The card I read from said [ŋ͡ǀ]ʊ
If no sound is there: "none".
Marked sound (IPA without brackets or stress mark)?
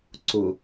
ǀ